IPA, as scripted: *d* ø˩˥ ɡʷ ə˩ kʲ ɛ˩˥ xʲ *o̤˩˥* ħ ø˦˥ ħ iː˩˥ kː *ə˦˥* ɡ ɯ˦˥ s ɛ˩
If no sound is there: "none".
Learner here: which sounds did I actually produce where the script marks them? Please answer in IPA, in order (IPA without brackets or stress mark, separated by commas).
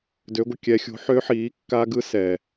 d, o̤˩˥, a˦˥